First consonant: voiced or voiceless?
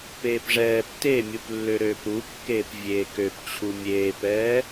voiceless